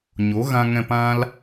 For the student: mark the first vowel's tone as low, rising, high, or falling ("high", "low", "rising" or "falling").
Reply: rising